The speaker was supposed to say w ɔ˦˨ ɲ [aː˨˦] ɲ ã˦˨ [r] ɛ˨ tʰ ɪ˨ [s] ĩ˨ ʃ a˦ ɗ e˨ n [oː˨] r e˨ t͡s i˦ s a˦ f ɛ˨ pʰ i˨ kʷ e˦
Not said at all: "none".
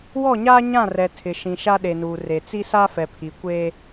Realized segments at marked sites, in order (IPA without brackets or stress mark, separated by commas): aː˦, r, ʃ, uː˨